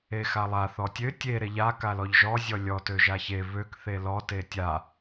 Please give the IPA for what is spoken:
e x a lˠ a θ ɔ tʲ ø tʲ e ɾ e ʎ a k a l ɔ ʎ ʒ ɔ zʲ ɔ lʲ ɔ t ø ʒ a ç e β ø k θ e l ɔ t e tʲ a

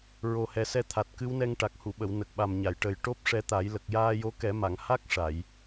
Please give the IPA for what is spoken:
ɹ o˨˩ h ɛ˨˩ s ɛ˧ t̪ʰ a˨˩ t̚ k ɨ˧˥ w n ɛ˧ ŋ ʈ a˨˩ k̚ h u˨˩˨ ɓ ə˨˩˨ w n ə˨˩ k̚ ɓ a˨˩ m ɲ a˨˩˨ j ʈ ə˨˩ j ʈ o˦˥ p̚ ʂ ɛ˧ t̪ a˨˩˦ j l ə˨˩ k̚ j aː˧ j o˧˥ k ɛ˨˩˦ m a˨˩˨ ŋ h a˦˥ k̚ ʂ a˨˩˨ j

